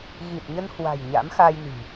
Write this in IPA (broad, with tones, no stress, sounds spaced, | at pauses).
ɣ i˨˩ t̚ ɲ ə˧ n h w a̤˨˩ j ɲ a̰˧˥ m x a˧ j n i̤˨˩